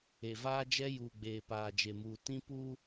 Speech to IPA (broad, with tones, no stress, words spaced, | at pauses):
e˨vaː˦d͡ʒɛ˦ juː˨ɡ͡beː˨ paː˨d͡ʒe˨muː˨ tĩ˦ puː˦